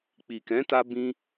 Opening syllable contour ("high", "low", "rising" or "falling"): low